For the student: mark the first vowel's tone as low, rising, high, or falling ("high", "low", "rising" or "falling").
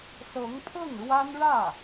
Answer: rising